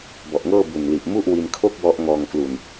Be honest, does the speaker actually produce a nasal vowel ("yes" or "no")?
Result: no